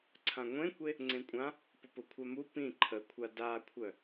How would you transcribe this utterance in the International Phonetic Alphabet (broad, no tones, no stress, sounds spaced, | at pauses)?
ǀʰ ã ŋʷ ẽ kʷ e | ŋ͡ǀ ẽ kʷʼ ã | p ʊ p ʊ kʷʰ a m u p ĩ ǃʰ ə kʷʰ a d a kʷʰ œ